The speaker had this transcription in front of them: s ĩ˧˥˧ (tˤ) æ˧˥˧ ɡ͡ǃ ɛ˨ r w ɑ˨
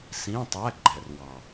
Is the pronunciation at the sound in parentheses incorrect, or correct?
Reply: correct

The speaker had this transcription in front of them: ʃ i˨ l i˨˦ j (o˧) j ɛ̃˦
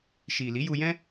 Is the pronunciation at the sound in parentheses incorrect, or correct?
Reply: incorrect: u˧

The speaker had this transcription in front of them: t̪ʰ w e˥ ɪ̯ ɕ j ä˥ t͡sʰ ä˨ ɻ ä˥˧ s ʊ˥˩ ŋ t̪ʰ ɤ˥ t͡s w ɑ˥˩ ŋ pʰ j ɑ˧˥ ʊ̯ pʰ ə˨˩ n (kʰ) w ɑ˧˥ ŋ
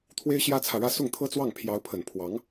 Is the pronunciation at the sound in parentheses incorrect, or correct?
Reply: incorrect: pʰ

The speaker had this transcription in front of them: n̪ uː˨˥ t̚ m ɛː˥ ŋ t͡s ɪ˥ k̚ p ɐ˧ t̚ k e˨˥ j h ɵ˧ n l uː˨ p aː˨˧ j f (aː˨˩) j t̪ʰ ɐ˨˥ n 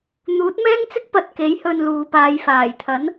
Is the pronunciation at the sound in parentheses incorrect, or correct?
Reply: correct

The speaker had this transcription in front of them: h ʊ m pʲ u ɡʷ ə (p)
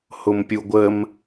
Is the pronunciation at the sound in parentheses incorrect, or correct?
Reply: incorrect: m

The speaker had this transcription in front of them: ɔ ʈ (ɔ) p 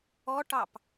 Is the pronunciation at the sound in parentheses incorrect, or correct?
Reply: incorrect: ɑ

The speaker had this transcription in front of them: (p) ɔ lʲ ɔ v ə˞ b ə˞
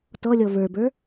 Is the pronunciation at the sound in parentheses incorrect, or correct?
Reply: incorrect: t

